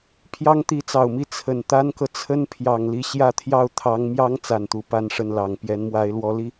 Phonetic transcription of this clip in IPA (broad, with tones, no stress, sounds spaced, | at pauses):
pʰ j ɑ˥ ŋ t̪ i˧˥ t͡s ɑ˨˩ ʊ̯ m i˥˩ t͡sʰ ə˨˩ n t̪ a˥ n k ɤ˨ t͡sʰ ə˥ n pʰ j ɑ˨˩ ŋ l i˥˧ ɕ j ä˥˧ t̪ʰ j ɑ˥˩ ʊ̯ t̪ʰ ɑ˧˥ ŋ m j ɑ˥ ŋ t͡s a˨˩ n t̪ u˧˥ p a˥ n ʂ ə˥˩ n l ɑ˨˩ ŋ p j ɛ˧˥ n m w a˧˥ ɪ̯ l w ɔ˧˥ l i˥˩